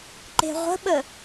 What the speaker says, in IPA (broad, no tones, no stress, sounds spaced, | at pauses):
ǃ e̤ ʁʷ ə̤ ɓ ə